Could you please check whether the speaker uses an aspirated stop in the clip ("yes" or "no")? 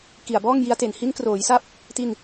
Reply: no